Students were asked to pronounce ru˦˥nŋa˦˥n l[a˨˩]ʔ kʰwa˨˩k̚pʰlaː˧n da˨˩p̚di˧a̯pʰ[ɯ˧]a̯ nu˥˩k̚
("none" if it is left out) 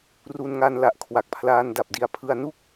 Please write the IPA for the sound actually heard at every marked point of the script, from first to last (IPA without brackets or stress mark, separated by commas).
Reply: a˨˩, ɯ˧